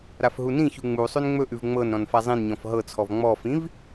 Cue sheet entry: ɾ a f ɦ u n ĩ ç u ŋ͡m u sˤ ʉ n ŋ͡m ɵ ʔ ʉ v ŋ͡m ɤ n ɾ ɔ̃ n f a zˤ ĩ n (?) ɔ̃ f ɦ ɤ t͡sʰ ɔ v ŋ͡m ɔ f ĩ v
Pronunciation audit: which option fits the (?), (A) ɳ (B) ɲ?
B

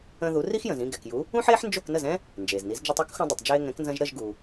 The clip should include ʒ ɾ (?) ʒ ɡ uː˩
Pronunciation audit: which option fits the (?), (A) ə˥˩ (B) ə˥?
A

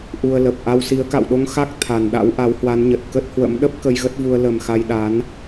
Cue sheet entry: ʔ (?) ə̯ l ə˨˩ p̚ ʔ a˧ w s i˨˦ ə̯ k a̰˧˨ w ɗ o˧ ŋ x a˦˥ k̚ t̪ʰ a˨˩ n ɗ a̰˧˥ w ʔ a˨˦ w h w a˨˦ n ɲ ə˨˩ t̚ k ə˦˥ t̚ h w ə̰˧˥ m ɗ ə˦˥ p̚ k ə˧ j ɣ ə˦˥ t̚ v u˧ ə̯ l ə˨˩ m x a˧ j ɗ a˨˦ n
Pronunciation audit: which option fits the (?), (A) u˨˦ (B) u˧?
B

